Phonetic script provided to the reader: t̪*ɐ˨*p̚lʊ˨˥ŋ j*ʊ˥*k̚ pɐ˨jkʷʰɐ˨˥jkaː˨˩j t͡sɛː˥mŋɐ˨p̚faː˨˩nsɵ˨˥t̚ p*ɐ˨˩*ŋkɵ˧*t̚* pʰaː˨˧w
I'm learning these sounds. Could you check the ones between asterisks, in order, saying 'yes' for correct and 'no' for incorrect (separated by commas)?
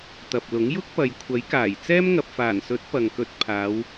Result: yes, yes, no, yes